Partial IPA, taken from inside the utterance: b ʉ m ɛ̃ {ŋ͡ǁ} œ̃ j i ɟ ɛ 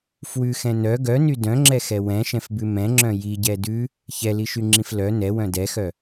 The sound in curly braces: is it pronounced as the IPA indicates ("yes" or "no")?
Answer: yes